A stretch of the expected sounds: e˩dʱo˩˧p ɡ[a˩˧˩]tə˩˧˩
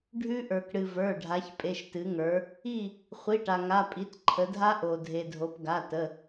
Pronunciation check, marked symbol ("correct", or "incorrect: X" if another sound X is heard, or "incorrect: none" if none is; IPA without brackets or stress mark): correct